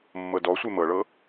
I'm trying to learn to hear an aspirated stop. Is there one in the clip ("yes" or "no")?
no